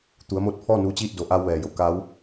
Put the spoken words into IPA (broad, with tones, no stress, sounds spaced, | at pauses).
t̪ u˩˧ ə̯ m o˧ t̚ pʰ ɔː˥˨ n uː˧˥ t͡ɕ iː˥˨ t̚ d o˩˧ ʔ aː˧ w ʋ ɛː˩ j o˩ k a˧˥ w